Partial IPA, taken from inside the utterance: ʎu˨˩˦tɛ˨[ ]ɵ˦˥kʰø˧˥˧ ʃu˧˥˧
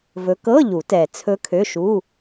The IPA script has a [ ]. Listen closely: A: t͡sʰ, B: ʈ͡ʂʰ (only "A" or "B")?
A